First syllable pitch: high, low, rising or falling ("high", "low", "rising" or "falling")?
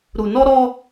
low